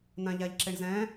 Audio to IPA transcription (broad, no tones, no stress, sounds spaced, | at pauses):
n ã ʎ a ʎ ǁ e ɳ z ɛ̃